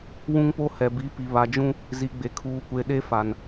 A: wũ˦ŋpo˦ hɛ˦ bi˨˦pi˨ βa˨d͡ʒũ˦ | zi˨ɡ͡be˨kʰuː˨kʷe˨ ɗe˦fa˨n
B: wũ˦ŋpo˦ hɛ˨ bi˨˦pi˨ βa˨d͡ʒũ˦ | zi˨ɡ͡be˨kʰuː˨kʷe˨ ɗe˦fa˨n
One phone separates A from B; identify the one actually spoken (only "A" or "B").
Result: B